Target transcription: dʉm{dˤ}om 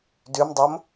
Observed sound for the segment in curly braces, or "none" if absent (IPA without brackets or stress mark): dˤ